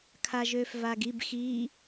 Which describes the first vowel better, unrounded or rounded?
unrounded